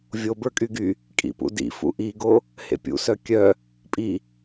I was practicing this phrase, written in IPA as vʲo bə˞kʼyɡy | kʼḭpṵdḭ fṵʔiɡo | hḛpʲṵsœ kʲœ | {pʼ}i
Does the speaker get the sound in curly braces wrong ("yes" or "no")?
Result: no